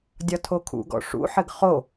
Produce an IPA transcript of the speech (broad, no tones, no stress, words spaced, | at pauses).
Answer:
dʲɒtʰokʰṵɡɔ̰ ʂṵħɘɡ χo